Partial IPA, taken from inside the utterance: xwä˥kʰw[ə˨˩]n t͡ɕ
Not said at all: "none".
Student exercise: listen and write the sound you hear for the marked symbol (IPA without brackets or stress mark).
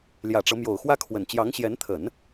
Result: ə˨˩